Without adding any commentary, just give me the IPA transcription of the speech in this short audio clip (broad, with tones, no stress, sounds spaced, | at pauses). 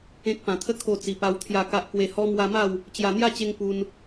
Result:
ẽ˨ k̚ p ã˨˩ t̪ʰ ə˦ kʰ o˧ t͡s i˨˩ p a˧ w t̪ʰ j a˨˩ k a˨ ʔ k w e˨˩ h ɔ˧ m w a˧ m a˥˧ w | t͡ɕ j a˨˩ n̪ j a˥˧ t͡ɕ e˧ ŋ p u˧ n